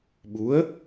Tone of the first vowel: rising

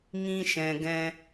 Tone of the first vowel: high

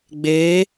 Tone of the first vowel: rising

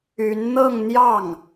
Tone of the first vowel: rising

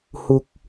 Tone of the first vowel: high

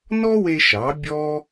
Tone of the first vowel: high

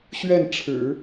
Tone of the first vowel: falling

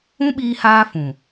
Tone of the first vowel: high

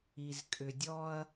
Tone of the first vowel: low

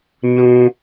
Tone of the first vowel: high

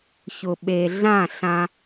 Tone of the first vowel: low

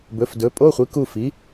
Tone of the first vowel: rising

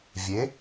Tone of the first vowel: rising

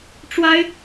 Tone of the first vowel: high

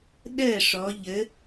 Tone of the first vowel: falling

